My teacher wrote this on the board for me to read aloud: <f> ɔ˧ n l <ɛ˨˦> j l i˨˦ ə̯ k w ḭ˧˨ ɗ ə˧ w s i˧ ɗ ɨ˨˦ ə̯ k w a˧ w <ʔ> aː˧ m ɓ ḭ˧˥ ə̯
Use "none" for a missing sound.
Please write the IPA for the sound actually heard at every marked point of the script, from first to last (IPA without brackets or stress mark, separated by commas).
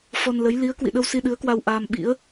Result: f, ə˨˦, ʔ